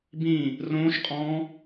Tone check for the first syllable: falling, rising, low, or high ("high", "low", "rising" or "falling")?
falling